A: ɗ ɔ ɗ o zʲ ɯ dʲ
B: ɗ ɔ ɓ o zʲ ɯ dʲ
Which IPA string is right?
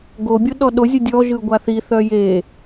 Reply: A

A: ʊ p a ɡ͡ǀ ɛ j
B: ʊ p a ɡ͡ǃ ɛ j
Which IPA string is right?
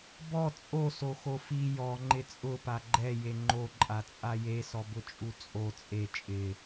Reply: B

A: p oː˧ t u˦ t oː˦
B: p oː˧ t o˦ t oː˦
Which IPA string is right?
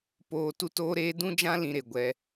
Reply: A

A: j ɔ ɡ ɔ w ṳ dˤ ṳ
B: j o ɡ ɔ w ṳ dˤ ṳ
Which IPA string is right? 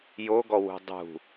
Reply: B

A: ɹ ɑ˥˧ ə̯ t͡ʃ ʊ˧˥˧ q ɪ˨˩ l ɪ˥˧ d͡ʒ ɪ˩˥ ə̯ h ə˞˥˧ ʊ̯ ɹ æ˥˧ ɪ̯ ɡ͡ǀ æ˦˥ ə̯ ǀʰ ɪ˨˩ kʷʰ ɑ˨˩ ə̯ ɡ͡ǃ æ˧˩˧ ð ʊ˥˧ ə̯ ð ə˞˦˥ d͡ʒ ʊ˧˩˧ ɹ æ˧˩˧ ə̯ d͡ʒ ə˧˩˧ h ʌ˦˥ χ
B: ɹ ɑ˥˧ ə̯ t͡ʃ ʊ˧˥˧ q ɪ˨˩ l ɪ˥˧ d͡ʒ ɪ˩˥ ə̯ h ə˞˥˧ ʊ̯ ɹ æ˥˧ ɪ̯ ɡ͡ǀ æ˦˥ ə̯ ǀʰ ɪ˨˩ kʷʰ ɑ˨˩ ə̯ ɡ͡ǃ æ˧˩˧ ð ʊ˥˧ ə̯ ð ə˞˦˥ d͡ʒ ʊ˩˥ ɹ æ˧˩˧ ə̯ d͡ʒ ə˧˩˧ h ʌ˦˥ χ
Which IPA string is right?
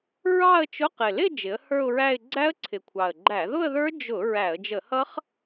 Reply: A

